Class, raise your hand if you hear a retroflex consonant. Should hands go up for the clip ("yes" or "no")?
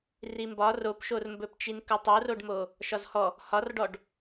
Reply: yes